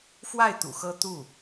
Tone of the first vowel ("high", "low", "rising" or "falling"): falling